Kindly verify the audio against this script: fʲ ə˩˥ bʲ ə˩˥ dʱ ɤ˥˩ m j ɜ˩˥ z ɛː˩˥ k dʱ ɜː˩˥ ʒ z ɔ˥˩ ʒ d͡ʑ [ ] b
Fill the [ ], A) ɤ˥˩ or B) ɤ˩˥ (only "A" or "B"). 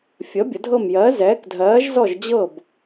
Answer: A